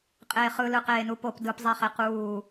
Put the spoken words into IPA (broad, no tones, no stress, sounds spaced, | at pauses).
qʼ eː χ ɯ l ɯ q eː n u p o p d ɯ p zˤ e χ e q uː